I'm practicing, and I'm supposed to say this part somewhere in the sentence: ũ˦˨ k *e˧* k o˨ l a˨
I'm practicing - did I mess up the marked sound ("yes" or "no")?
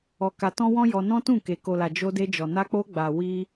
yes